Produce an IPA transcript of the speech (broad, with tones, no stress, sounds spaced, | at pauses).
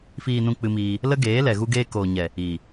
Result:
f iː˨ n ũ˨ k͡p ɨ˧ m iː˧ | l ə˦ ɡ eː˨˦ l ɛ˨ ɣ u˧ ɡ eː˧ k oː˨ ɲ ɛ˨ | iː˨